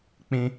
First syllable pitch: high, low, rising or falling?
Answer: high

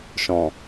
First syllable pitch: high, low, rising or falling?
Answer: low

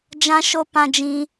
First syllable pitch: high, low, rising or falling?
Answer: high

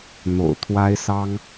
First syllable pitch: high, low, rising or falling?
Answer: low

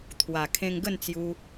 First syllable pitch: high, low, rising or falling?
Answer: low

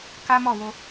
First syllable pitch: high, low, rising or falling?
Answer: high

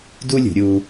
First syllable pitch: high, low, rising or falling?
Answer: high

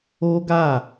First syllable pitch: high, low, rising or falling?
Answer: high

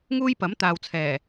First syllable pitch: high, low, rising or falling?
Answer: high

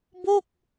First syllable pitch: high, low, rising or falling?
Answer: falling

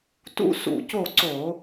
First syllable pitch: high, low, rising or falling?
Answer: high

